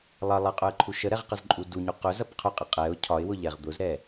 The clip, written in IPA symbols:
lˠ ɐ lˠ ɐ qʼ ʊ ə̯ ǃʰ u ʃ ə ɾ ɛ ʁ q ə z ǃʼ u d u ɲ u q ɵ z ɐ p qʰ ʊ qʼ ə qʼ ɛ ʊ̯ cʰ ɒ ɪ̯ w ʊ ʎ ɛ ʁ d̪ ʊ z ɾ ɛ

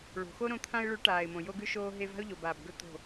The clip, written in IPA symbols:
ɭ o̤˨ x o˦ ɾ õ˧ t̪ʰ ã˧ ɪ̯ ɭ ʉ˨˦ ʈ aː˨ ɪ̯ m õ˨ j o˧ ɡ ʉ˧ ʃ oː˧ ɦ e˧ v a̤˦ ʊ̯ ʎ o˨ b aː˨ b ɡ ɵ˧ t̪ o̤˦˨

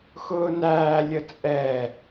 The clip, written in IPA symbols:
x ʊː n æː lʲ ə t͡sʼ ɛ

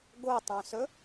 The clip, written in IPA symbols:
ɡ o tˤ œ̃ s ɵ

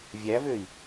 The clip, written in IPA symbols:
vʲ æ v ø i̯

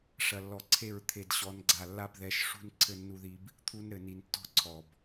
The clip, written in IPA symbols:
ʂ ɐ˨ lː ɔ˨ ǀʰ e˦˨ ɹ t̪ʰ e˨ d ɕ ɔ˨˦ n ɡ͡ǀ a˨ lː a˦ b ð ɛ˨˦ ʃ ʂ ṳ˦ n ǀʰ ɘ˦ nː u˦ ð i˦ b | t̪ʰ u˦ n ɾ ɘ˨ n i˨ n tː ɔ̤˦ ǀʰ ɔ˨ b

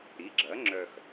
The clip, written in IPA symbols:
ɾ i˩˥ ɡ͡ǁ ɐ˩˥ ŋ͡ǁ œ˨ x

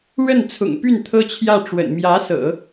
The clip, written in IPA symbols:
ɻ ə˥˩ n t͡sʰ ʊ̰˨˩ ŋ p y˥˩ n t̪ʰ ɤ˥ t͡ɕʰ j ä˥˩ ʈ͡ʂ w ə̰˨˩ n m j ä˧˥ s ɤ̰˨˩˦

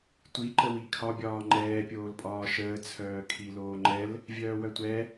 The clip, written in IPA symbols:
tʷ i ǃ ə w i kʰ ɒ bʲ ɒː ŋ͡ǃ ɛː pʲ oː l pʼ ɒː ʃ əː t͡sʰ œː kʰ i l oː ŋ͡ǃ ɛ l | vʲ œː w œ tʷ ɛ

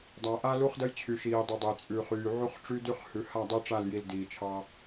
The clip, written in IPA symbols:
dˤ a˨ ʔ a˦ l u˦ χ d ə˦ j t͡ɕʰ y˨ ʃ iː˨ dˤ i˨ dˤ ə˨ j t͡sʼ ʉ˨ χ yː˨ ʕ u˦ χ ʈ͡ʂ y˦ d y˦ χ h ʉ˨ h a˦˨ dˤ i˦ ʈ͡ʂ a˦˨ l j i˨ l d iː˨ t͡ʃʰ ɑ˦

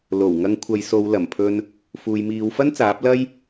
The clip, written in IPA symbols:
l o˨˩ w ŋ ɐ˧ ŋ kʷʰ ɐ˨˧ j s o˨˧ w l ɐ˨˩ m pʰ ɵ˧ n | f uː˨ j m iː˨˧ w f ɐ˥ n t͡s aː˨˥ p̚ l ɐ˥ j

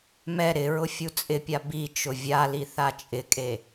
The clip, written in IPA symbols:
m ɛ ɾ ɪ ɹ ʊ fʲ u t͡sʼ ɪ pʲ a b i t͡ʃ ʊ vʲ a l i θ a t͡ʃʼ ɪ kʼ e

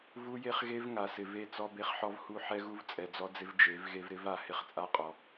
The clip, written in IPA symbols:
v u˦ j e˦ χ ɣ e˦ v ŋ a˨ s ɪ˨ v e˦˨ t͡s ɔ˦ b e˦ χ ħ ɔ˦ v h u˦ ħ ɛ˦ ɣ u˦ v t͡sʼ ɛ˨ d͡z ɔ˦ d͡z ɪ˦ v d͡ʒ e˨˦ v ɣ e˦ v ɾ ɪ˦ v a˨ h ɪ˦ χ t͡sʼ a˦ qʼ ɔ˨

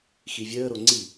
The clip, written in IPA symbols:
x i vʲ əː ɾ o ŋ͡ǀ i

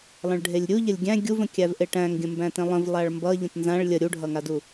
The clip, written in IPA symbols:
lˠ ə̃ ɭ ɖʱ e lʲ ɾʲ u ʎ ə lʲ ɡʲ æ̃ ɡʲ u v ə̃ kʲ æ v ʔ e ʈ æ̃ ŋ ɡʲ ə̃ m b æ̃ t ẽ lˠ ə̃ v lˠ a ɭ m b ʌ ʎ ə̃ t n z ã ɭ lʲ ə ɾʲ u ɖʱ ʌ ŋ a d u

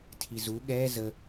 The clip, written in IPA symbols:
tʰ i z u ɠ ɛ z ə

